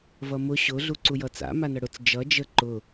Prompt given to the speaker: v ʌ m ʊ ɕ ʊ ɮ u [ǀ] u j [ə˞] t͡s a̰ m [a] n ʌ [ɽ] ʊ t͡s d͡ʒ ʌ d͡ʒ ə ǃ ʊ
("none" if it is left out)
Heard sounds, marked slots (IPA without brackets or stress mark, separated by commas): ǀ, ʌ, a, ɽ